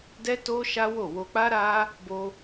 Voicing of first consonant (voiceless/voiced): voiced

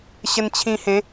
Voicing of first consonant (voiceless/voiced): voiceless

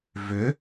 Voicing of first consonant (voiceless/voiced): voiced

